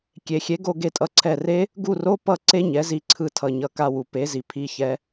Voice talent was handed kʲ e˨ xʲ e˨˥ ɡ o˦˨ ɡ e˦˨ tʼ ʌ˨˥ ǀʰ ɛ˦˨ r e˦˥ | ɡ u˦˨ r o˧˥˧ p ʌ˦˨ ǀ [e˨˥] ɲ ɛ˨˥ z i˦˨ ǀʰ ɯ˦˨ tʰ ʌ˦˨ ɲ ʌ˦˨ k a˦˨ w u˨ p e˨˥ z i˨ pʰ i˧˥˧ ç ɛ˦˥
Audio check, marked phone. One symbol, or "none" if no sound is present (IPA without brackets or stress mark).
e˦˥